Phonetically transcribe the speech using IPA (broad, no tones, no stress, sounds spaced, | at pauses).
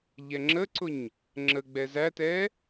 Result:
ʎ ɛ ŋ͡ǁ ə ǀ ʊ ɲ | ŋ͡ǁ ə ɡ͡b ɛ z æ t ɛ